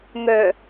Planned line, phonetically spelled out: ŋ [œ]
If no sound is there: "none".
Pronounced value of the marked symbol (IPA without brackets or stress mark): œ